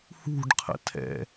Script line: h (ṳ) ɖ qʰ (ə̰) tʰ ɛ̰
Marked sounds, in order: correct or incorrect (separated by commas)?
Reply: correct, correct